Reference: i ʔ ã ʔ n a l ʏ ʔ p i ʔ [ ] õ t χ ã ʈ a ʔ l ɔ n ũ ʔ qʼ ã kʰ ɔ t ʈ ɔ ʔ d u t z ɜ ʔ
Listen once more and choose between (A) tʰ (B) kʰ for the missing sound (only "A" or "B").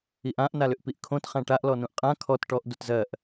B